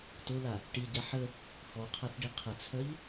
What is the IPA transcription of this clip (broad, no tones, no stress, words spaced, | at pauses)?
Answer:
tola | ʈiɟa ħə | xɔqʰaθɖi qʰət͡sʰœʎ